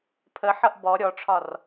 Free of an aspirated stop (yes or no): no